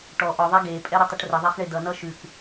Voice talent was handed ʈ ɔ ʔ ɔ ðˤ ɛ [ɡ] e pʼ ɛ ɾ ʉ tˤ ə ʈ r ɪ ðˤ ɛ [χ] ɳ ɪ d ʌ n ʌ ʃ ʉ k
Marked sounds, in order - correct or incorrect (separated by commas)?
correct, correct